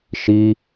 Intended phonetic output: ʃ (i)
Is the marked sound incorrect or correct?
correct